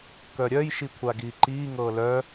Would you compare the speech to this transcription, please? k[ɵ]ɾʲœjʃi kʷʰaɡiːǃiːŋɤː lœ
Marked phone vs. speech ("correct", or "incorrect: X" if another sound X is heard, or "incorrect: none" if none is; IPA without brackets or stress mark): incorrect: œ